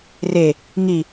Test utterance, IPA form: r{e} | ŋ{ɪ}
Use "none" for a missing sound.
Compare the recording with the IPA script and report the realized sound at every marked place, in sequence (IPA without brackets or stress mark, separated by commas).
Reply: e, i